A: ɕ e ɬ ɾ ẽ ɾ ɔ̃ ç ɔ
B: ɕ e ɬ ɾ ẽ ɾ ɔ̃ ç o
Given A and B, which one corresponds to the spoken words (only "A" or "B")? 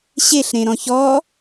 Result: A